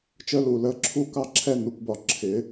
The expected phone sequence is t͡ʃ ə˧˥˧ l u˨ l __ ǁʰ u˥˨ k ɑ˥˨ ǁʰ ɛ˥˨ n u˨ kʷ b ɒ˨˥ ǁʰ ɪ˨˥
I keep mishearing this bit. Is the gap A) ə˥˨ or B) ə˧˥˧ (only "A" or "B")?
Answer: B